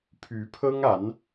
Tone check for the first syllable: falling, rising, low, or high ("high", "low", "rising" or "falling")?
rising